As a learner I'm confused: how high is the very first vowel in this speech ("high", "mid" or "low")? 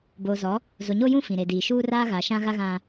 mid